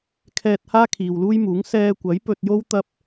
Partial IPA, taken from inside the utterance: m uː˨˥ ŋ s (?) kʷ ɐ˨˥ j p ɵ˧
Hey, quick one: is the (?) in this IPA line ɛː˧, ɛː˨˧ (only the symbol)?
ɛː˧